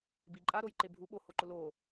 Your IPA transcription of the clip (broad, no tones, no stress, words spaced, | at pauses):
biǃʼaɾoj ǃebʱu ɓohoǃʊ lo